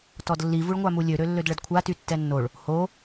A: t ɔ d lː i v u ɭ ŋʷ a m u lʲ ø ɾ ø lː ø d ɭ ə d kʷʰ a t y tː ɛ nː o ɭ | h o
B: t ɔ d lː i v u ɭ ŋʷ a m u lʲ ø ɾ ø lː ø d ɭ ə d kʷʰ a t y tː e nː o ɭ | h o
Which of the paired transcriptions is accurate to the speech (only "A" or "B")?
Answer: A